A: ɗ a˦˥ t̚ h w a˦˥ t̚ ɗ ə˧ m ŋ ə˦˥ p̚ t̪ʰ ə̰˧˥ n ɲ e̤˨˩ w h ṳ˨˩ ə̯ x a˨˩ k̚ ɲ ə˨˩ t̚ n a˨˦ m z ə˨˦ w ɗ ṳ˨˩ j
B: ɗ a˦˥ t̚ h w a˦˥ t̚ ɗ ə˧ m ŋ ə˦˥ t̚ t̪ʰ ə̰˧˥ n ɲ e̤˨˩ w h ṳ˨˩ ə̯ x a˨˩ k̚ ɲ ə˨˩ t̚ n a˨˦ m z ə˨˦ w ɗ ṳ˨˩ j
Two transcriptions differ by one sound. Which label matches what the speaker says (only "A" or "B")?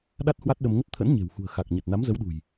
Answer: B